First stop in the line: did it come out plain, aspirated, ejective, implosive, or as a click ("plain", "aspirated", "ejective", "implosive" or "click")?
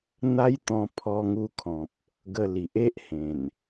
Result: plain